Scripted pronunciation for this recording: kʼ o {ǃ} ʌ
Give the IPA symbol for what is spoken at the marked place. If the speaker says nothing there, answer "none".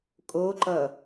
ǃ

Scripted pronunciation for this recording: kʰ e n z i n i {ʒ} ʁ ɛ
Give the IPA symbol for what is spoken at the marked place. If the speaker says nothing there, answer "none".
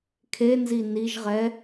ʒ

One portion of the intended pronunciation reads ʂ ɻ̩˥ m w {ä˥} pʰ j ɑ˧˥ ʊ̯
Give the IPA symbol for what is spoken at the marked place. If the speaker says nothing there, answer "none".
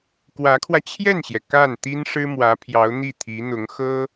ä˧˥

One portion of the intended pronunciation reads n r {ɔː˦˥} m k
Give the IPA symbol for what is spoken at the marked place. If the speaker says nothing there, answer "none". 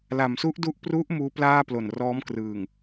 ɔː˦˥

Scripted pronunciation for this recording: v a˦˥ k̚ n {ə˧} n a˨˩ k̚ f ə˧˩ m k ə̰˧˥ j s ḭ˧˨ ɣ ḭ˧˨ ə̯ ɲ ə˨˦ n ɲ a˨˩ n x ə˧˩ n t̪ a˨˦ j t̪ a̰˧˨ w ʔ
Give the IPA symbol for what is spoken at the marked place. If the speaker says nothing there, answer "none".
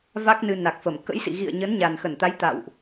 ɨ˧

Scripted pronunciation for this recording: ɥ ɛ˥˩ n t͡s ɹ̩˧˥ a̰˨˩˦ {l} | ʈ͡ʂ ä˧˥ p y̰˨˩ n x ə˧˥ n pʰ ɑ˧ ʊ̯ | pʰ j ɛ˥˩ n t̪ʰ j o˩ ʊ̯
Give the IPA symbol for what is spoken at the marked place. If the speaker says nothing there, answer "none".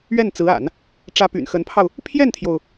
n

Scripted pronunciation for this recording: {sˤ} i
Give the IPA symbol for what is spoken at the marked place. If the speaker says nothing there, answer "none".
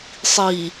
sˤ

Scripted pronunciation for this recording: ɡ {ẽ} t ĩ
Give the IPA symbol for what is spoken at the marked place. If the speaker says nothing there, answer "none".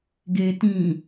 e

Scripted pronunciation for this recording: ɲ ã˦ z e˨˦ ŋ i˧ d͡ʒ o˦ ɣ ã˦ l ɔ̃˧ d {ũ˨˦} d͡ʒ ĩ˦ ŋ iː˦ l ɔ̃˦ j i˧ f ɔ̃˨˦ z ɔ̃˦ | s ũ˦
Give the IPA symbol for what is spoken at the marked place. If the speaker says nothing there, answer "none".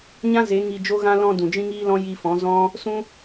ũ˨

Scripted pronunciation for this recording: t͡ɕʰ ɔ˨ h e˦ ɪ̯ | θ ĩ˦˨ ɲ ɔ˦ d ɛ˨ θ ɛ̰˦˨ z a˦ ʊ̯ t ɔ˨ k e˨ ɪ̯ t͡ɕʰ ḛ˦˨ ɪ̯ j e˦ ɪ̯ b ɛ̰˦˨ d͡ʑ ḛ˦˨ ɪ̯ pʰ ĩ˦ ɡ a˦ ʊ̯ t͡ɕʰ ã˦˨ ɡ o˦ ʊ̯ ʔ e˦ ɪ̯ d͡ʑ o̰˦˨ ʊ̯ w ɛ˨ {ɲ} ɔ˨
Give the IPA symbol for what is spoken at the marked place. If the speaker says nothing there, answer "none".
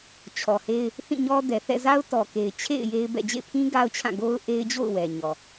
ɲ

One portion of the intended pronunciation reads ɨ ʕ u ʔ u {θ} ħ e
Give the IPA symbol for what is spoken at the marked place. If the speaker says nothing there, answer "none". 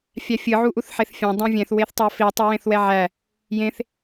θ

